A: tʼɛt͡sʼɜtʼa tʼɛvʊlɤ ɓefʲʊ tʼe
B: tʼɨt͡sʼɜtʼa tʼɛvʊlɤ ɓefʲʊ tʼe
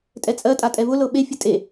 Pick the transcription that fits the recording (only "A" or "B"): A